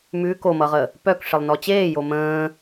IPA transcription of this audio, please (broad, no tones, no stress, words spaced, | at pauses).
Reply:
mʉ komʌʁə | pœkʂɪlˠnɔ t͡ɕeːjo mə̃ː